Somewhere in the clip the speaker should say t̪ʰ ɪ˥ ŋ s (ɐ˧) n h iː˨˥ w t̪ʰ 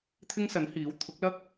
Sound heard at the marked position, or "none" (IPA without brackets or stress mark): ɐ˨˥